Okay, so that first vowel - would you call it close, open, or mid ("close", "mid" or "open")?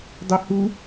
close